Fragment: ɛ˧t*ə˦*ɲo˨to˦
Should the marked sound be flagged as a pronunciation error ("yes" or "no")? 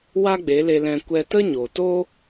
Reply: no